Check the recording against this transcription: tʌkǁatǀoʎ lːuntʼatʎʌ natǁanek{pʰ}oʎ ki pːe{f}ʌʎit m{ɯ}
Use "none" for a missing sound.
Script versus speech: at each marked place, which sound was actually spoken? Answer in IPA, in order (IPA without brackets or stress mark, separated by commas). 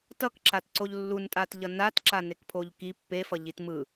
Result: pʰ, f, ɯ